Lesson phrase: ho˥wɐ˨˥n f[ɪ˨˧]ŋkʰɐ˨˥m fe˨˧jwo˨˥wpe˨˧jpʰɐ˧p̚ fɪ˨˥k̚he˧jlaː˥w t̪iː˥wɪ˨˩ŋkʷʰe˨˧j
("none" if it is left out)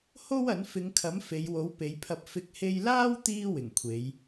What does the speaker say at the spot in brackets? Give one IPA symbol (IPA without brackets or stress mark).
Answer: ɪ˨˧